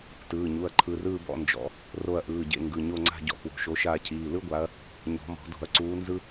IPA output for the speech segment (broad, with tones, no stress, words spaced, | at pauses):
tɯː˩˧˩ɲu˩˧˩ɐ̯ǃʰɯ˩˧˩rɯː˦˨ bɔ̰˦˨nd͡ʒɔ̰˨˩˦ | ro˦˨ɐ̯ʔɯː˩˧˩ɟḛ˦˨ŋɡɯ˩˧˩ ɲo˦˨ŋ͡ǀa̤˦˨ ɟɔ̰˨˦kwo̤˩˧˩ʃo˨˦ʃaː˦˨ cʰiː˩˧˩lɯ˥ɡʷa˨˦ɐ̯ | ɲɔ̤˨˩˦mɔ̤˨˩˦do̤˨˩˦ɐ̯ǀuː˨˦ nzɯ˥